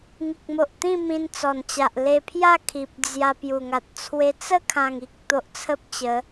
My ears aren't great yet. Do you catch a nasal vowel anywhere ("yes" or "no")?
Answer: yes